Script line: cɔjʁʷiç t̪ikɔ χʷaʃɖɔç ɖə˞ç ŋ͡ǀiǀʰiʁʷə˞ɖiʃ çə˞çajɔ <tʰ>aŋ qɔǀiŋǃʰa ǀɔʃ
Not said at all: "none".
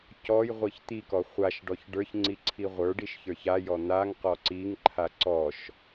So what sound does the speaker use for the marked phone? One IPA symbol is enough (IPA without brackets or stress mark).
n̪